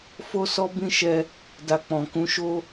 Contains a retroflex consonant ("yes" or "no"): no